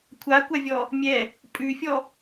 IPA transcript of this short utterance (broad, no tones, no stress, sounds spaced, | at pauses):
kʷʰ a kʷ a vʲ ɔ | mʲ ɛ | pʼ ʉ fʲ ɔ